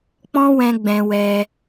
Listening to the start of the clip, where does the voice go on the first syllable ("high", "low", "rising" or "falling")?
high